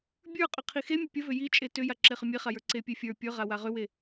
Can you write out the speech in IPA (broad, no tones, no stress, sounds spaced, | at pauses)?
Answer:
bʲ ə˞ qʼ ʏ qʰ i x e mʲ ə pʲ ə v ʏ j i t͡ʃʼ e t ʏ j a ǁ e χ ʏ mʲ e χ a j ə˞ ǀ e pʲ e fʲ ə˞ pʲ ə˞ ʁ a w a ʁ ʏ w e